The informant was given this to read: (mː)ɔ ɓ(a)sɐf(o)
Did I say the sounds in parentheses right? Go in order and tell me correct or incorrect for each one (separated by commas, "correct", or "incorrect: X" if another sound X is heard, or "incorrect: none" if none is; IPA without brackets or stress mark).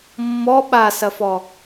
correct, correct, incorrect: ɔ